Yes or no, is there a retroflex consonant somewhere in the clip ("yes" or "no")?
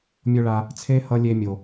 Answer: yes